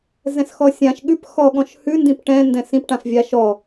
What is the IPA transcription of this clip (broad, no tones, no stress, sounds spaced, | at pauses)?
z ɛ̃ s x ɔ sʲ ã ʃ ɠ ʉ p x ɔ ɠ ɔ̃ ʃ h ʉ n d ĩ p ʈ ɛ̃ n d ɛ̃ s ĩ p ʈ ã f vʲ a ʃ ɔ